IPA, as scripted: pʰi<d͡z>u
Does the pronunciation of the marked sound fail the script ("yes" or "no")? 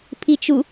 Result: yes